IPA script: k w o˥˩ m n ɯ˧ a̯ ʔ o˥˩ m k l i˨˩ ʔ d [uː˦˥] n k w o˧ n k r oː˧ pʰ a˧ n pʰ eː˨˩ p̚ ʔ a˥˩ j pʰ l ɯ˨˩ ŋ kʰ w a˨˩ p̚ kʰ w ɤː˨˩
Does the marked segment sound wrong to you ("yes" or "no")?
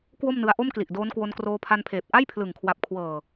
yes